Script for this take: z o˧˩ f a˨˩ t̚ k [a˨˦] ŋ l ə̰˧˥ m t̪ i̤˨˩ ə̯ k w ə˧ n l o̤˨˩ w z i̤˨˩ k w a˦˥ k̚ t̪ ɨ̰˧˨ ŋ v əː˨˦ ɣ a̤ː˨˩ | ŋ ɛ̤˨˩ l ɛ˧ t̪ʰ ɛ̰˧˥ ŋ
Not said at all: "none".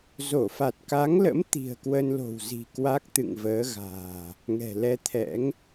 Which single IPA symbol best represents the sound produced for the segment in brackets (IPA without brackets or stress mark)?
a˨˦